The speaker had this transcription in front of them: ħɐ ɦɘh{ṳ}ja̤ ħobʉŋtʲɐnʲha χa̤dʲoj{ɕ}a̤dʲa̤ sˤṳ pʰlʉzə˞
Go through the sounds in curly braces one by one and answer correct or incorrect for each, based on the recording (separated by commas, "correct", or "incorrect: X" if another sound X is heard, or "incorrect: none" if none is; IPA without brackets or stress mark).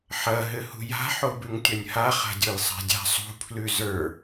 correct, incorrect: sˤ